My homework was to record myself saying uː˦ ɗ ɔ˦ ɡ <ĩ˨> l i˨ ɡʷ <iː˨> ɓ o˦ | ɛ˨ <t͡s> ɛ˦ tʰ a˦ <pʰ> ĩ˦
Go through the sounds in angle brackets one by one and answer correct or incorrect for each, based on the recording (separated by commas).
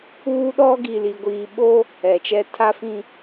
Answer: incorrect, correct, incorrect, incorrect